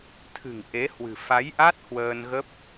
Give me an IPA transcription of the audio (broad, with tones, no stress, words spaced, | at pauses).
t̪ʰɨ̤˨˩ŋ ʔe˨˦hwɨ̤˨˩ fa˨˦jʔa˦˥t̚ hwəː˧nɣə˦˥p̚